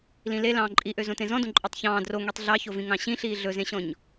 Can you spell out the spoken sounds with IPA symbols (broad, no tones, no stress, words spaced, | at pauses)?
lĩle lɑ̃ːǃʼiʔø zõtẽzɔ̃dõ ǃʼɔtˤçɑ̃ː dro ŋetˤɮɑçovĩ ŋɑ̃ɕĩɬiː ɮɵzẽɕɔ̃ɲ